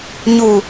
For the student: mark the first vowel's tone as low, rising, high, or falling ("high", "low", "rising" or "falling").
low